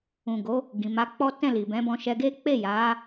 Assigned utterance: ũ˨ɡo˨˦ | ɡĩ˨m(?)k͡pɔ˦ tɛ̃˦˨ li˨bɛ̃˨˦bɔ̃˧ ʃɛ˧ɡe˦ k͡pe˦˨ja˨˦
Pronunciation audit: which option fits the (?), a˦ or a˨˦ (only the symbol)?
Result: a˨˦